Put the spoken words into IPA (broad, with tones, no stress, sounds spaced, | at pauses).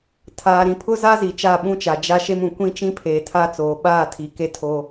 tʰ aː˨ ɾ ĩ˨ pʰ ʊ˦ z a˦ z i˨ t͡ʃ a˦˨ ɓ ũ˦ t͡ʃ a˨ d͡ʒ a˦ ʃ e˦ m ũ˨ kʷ ĩ˦ t͡ʃ ĩ˦ pʰ eː˨ tʰ a˦ t͡s oː˨ ɓ aː˦˨ tʰ i˨ k e˦ tʰ o˦